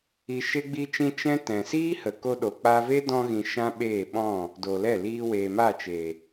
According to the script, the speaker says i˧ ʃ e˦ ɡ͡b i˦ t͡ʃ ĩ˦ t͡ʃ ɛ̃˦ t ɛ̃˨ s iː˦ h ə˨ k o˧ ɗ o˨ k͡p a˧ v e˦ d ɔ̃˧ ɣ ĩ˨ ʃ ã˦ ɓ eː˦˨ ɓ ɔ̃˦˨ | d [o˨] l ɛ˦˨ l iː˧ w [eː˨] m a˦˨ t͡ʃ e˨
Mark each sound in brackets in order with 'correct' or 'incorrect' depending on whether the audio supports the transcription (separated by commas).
correct, correct